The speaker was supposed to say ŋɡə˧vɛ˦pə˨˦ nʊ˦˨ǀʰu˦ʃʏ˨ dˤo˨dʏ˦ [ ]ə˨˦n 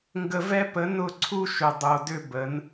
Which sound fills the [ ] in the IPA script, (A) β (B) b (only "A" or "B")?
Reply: B